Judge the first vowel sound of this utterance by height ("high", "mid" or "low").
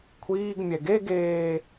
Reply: high